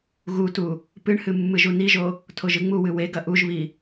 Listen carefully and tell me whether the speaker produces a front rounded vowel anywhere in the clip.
no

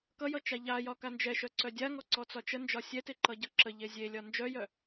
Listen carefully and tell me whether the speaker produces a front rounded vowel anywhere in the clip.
yes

